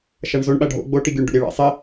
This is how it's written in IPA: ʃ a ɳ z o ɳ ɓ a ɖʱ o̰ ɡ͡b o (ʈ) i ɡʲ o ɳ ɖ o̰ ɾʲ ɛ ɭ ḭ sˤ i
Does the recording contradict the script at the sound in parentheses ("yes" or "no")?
no